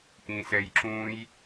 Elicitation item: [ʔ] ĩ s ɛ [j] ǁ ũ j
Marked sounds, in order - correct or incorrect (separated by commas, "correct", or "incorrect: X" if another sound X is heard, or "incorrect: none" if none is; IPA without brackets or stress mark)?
correct, correct